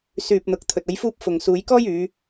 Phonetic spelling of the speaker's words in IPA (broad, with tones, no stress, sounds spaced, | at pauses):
s yː˨ p̚ n̪ ʊ˨ k̚ t̪ʰ ɵ˨ t̚ ɐ˨˧ j f uː˧ p̚ f ʊ˨ ŋ s uː˨˧ j k ɔː˥ j yː˨˧